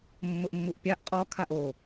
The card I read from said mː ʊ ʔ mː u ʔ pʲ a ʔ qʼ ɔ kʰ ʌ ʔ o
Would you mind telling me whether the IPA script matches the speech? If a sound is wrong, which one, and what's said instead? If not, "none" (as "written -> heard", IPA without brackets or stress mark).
ʌ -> a